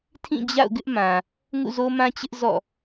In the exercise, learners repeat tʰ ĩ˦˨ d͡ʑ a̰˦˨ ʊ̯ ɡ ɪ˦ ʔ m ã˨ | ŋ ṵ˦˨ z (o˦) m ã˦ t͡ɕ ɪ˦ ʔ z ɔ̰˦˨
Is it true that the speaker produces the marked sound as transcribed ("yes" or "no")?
yes